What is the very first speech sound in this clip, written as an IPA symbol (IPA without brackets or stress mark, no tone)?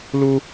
l